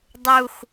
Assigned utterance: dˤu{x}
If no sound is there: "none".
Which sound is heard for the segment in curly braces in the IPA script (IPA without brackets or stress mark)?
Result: x